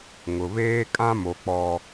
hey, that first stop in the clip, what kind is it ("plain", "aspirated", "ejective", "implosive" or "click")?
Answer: ejective